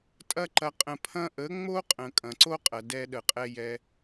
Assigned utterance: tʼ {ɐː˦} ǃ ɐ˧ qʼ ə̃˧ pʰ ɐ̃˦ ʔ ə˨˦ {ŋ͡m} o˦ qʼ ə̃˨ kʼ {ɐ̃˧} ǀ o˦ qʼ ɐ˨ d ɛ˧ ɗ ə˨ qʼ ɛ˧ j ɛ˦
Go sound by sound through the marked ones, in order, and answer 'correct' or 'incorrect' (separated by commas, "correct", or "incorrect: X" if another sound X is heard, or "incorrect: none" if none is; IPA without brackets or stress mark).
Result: incorrect: ɐ˦, correct, incorrect: ɐ̃˨